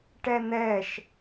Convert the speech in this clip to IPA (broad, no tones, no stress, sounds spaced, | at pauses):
ʈ ɛ n̪ ɛ ʃ